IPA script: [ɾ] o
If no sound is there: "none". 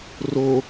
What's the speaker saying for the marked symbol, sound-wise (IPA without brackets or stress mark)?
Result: r